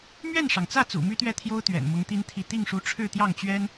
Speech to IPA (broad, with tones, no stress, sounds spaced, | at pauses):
m ɥ ɛ˥˩ n ʂ ɑ˩ ŋ t͡s ä˥˩ t͡s ṵ˨˩ m y˥ t̪ ɥ ɛ˥˩ t̪ʰ j o˥ ʊ̯ t̪ ɥ ɛ̰˨˩ n m ʊ˧˥ ŋ t̪ i˥ n t̪ʰ i˥˧ t̪ i˥˩ ŋ ʂ u˧˥ ʈ͡ʂʰ ɻ̩˥˧ t̪ j ɑ˥˩ ŋ t͡ɕ ɥ ɛ˥ n